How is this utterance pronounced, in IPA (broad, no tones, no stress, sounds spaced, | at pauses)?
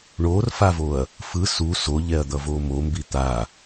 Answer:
ɳ o r f a v o ɐ̯ | f ɯ s u s o ʎ ɛ ɐ̯ d̪ ʌ v o m o m b i t̪ a